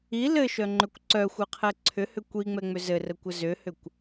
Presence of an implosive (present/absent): absent